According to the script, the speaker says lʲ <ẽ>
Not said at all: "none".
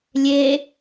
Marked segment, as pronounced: e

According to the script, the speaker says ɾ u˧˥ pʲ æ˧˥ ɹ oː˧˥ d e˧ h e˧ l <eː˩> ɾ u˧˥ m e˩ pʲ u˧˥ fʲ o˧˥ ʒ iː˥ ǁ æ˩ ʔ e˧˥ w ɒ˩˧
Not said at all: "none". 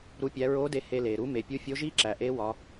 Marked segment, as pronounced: eː˩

